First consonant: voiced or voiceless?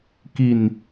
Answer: voiceless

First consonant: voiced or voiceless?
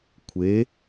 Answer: voiceless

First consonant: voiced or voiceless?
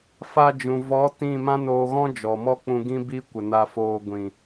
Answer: voiceless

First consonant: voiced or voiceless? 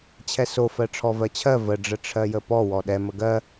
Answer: voiceless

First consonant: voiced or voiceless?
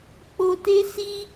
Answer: voiceless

